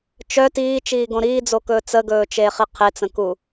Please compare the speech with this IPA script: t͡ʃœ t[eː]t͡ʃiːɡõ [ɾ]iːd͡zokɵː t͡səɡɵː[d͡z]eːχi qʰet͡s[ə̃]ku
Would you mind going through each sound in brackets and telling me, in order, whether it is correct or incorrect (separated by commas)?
incorrect, correct, incorrect, correct